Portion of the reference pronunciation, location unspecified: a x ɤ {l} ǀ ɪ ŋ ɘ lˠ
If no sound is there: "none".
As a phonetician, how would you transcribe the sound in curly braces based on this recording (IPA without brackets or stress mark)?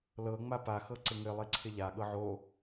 none